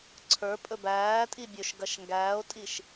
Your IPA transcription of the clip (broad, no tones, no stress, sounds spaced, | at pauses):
ǀʰ ə˞ pʼ ɵ b æː tʼ i bʲ ɵ ʃ ɡ ɐ ʃ ŋ ɡ æː o̯ tʼ i ʃ